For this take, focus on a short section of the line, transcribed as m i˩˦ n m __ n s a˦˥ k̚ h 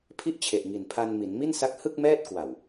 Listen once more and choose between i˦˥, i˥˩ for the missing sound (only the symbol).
i˥˩